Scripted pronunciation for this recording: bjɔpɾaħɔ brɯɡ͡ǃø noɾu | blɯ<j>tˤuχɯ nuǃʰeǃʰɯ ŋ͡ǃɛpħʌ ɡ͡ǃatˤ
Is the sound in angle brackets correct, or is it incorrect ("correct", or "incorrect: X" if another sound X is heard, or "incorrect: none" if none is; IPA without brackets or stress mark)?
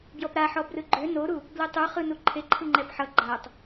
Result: incorrect: none